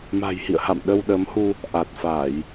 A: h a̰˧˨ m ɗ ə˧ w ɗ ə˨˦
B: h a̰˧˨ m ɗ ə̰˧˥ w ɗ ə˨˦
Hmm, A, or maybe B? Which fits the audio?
A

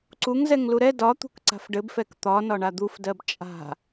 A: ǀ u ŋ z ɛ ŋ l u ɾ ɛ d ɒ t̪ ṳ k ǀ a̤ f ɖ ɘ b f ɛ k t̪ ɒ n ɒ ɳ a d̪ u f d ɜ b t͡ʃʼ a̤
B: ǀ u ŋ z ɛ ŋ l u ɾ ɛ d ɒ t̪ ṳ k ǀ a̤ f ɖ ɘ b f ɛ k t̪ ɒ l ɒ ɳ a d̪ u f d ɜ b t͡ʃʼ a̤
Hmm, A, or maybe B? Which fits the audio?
A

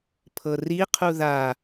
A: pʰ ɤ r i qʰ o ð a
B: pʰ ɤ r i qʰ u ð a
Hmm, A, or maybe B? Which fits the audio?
B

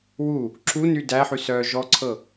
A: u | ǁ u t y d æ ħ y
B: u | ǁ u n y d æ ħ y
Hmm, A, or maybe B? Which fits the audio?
B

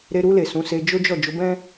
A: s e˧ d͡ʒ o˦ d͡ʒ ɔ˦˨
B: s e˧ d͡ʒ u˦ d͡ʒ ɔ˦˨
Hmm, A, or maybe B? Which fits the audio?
A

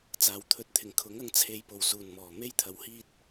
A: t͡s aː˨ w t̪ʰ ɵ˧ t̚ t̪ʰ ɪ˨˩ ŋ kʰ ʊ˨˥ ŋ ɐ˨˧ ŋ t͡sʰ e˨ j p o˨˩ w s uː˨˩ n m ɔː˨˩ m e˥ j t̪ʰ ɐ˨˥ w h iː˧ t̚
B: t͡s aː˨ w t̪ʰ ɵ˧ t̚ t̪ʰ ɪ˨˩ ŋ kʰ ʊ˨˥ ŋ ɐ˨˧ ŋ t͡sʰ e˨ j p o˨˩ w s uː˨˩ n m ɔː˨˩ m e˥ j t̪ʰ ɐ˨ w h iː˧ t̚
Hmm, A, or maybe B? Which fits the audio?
B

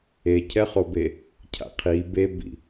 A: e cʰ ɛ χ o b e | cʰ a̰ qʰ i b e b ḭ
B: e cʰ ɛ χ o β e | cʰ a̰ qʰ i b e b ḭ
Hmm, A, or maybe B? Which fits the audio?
A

